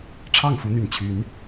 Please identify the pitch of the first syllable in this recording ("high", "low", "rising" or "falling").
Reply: falling